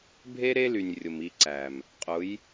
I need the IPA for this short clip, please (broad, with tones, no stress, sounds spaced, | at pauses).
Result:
bʱ e˦ ɾ e˦ l y˨ nʲ rʲ ʊ˨ m i˧ ǀ æ˨ m | qʼ ʊ˨˦ j